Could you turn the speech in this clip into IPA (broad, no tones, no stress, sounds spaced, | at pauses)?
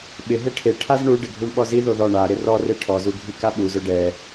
ɓ ɪ ɦ e ʈʰ e ʈʰ a z ɳ u ɖ ɪ ɡʱ u ɳ ɓ ɔ z i ð o ð ɔ ɳ a ɾ ɪ r ɔ r e ʈʰ ɔ z u ɡʱ i k a ɓ u z ʊ ɖ ɛ